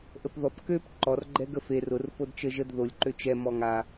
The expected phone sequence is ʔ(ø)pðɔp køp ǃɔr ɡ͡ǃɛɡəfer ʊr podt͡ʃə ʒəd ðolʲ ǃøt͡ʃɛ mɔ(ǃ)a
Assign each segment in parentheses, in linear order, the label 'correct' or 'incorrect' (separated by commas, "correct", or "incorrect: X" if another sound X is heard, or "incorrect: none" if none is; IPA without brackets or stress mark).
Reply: incorrect: ə, incorrect: ŋ